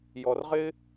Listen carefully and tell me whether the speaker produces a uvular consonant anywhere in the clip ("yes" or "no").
yes